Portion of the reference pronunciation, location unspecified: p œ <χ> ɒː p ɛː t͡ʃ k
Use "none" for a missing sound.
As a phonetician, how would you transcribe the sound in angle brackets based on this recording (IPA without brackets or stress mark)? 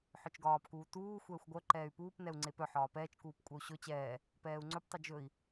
ħ